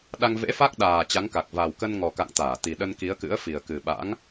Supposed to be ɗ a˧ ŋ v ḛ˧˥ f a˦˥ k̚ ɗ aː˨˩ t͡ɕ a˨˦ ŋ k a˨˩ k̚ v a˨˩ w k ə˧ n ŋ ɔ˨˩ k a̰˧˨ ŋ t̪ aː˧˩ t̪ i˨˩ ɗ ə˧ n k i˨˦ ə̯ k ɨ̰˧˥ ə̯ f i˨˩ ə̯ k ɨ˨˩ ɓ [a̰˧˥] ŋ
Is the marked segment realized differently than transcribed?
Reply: no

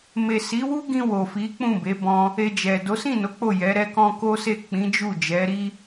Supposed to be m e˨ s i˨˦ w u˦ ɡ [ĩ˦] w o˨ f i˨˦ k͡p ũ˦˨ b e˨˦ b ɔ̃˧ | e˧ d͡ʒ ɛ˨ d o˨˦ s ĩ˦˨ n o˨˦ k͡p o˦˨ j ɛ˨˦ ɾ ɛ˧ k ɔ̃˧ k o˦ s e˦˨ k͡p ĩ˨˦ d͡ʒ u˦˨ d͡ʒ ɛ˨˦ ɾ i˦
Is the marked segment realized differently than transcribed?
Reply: yes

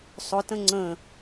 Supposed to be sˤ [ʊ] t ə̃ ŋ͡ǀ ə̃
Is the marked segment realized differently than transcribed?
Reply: no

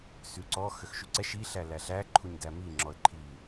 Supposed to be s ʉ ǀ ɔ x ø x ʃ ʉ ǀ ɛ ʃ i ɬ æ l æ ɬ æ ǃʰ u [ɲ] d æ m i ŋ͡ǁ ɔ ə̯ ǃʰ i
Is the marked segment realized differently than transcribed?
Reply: no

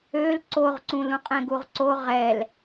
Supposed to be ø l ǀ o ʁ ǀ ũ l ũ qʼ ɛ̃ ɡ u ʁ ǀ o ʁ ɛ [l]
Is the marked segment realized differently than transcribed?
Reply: no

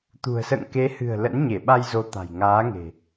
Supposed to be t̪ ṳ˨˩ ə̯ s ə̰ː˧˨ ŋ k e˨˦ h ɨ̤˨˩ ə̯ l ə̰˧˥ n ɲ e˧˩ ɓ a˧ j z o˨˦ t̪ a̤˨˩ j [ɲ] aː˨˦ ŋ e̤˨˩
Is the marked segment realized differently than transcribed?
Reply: yes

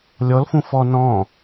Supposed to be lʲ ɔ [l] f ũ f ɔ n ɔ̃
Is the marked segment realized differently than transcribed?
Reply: no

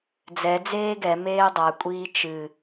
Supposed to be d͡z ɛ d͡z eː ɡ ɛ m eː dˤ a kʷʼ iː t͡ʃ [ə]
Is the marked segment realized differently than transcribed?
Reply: yes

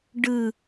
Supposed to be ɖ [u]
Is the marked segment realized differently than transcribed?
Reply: yes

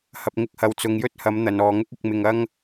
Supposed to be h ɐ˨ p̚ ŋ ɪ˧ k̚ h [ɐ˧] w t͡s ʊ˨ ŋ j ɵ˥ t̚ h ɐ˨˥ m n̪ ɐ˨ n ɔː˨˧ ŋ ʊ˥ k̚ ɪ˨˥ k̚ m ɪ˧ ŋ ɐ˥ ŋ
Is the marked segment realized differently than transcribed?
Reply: yes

